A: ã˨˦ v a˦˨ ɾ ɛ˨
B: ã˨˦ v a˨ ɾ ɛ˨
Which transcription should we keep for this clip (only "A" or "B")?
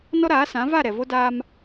A